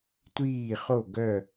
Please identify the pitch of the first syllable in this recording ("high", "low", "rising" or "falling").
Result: falling